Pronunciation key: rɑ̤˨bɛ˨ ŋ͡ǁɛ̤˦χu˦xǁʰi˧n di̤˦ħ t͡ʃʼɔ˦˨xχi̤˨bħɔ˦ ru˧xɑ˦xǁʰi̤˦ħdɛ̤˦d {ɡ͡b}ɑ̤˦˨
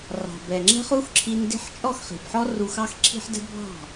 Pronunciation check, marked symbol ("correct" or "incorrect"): incorrect